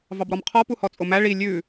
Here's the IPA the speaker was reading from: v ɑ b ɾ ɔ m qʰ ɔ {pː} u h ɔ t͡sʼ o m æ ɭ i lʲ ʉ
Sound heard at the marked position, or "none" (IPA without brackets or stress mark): p